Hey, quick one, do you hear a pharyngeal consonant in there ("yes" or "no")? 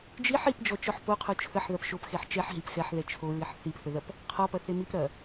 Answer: yes